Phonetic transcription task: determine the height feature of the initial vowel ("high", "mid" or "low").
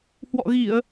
mid